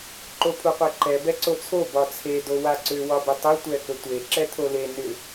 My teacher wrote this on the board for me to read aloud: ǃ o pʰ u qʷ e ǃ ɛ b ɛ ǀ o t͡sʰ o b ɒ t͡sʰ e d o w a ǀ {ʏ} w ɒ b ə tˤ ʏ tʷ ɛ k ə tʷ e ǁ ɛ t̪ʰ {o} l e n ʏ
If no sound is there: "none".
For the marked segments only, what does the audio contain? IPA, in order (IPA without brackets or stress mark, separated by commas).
ʏ, o